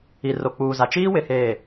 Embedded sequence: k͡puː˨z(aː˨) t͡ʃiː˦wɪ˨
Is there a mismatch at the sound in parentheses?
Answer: yes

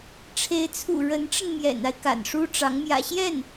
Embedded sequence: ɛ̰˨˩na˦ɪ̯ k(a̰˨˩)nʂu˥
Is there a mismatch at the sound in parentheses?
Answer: no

